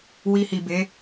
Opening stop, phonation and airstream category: plain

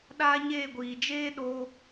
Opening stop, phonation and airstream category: implosive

